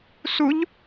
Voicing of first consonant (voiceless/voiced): voiceless